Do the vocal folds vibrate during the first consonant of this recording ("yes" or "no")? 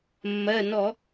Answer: yes